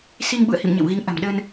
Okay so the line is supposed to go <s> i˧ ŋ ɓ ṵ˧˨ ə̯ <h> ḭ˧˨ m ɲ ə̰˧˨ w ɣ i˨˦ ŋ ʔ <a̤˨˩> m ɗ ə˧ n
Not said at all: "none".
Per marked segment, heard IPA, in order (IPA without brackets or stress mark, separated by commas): s, h, a̤˨˩